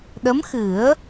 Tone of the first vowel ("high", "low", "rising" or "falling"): rising